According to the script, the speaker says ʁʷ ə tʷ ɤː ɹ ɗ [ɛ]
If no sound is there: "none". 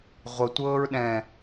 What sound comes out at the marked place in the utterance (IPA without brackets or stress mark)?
ɛ̃